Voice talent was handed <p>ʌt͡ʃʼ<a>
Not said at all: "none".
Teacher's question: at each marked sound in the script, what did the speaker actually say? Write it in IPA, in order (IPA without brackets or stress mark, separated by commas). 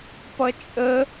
p, ə